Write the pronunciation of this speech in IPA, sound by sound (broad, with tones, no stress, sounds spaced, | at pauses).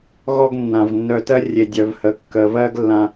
ɣ ɔ˦ ɡ nː ã˨ v nː œ˧ t ɜ˦ rʲ e˨ dʲ œ˨ v h ə˨ kː ə˨ v ɜ˦ ɡ lː ã˧